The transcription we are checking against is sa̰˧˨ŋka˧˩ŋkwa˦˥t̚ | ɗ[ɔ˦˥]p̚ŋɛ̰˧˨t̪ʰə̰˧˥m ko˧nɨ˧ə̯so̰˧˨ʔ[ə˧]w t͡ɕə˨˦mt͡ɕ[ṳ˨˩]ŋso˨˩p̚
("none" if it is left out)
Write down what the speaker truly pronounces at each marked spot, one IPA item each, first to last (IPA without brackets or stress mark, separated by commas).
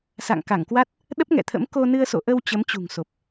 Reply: ə˦˥, ə˧, ṳ˨˩